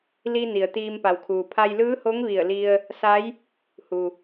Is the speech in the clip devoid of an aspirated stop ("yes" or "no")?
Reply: no